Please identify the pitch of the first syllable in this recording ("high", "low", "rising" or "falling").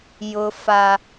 low